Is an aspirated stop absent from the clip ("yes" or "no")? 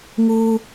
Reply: yes